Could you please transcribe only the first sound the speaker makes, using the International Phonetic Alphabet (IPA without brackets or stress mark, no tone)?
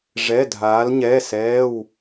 ʐ